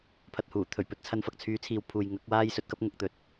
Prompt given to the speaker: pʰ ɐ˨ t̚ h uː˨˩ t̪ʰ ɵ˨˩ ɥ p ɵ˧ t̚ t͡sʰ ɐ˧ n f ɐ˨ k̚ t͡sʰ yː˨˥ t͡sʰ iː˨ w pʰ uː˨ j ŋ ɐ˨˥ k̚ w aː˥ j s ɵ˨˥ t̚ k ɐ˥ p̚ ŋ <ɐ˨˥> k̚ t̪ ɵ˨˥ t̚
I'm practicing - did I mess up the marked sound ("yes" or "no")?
no